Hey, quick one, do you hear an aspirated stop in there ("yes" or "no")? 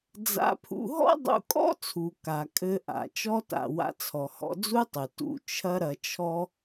yes